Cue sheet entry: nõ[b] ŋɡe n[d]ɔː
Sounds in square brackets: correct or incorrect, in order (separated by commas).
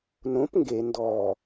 incorrect, correct